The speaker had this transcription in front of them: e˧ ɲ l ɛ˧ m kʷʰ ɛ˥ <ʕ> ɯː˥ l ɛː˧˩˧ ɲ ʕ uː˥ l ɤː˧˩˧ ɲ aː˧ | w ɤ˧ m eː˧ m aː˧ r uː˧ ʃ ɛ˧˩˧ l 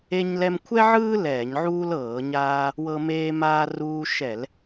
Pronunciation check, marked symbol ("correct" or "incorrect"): correct